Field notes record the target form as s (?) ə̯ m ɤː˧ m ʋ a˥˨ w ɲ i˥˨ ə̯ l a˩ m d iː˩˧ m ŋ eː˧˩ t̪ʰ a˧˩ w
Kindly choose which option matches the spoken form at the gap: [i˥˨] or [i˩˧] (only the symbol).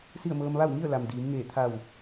i˥˨